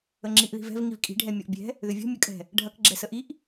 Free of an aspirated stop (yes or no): yes